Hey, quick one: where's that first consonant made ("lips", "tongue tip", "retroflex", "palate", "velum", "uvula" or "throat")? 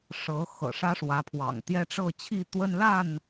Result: retroflex